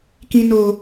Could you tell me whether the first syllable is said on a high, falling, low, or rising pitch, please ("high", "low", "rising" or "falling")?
high